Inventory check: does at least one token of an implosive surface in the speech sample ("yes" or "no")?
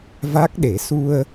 yes